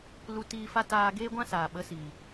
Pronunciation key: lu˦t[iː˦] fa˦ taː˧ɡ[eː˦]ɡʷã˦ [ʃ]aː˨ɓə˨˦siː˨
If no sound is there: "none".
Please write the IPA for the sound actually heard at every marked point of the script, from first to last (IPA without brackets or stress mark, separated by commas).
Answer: iː˦, eː˦, s